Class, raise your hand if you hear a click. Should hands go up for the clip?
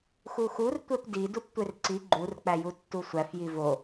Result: yes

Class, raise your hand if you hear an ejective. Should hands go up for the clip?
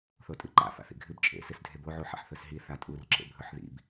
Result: yes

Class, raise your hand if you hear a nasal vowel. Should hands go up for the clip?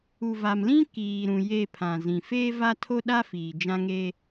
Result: yes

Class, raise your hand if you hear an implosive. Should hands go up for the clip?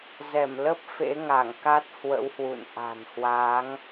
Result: no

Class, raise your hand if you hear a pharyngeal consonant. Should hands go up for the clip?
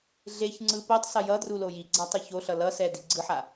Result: yes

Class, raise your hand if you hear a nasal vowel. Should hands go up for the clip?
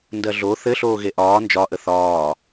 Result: no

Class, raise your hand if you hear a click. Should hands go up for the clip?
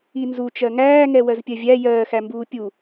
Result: no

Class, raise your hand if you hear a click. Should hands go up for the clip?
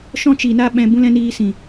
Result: no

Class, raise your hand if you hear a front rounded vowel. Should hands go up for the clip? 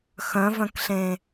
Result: yes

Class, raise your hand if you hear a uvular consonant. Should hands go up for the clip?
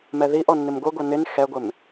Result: no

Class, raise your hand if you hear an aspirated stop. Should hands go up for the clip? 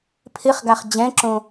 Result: yes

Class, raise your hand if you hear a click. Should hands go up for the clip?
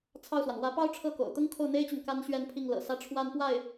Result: no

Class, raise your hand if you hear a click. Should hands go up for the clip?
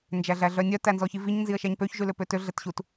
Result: no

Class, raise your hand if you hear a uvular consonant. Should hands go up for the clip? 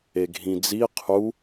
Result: yes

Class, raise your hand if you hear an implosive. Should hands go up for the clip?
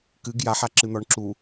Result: no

